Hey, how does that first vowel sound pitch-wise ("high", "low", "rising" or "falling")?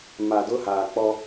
low